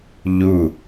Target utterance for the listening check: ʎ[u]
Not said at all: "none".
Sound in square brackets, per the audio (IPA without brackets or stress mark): u